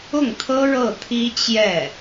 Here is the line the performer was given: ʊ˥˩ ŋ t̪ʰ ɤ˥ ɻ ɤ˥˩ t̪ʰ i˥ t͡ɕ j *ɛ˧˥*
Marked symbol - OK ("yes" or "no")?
no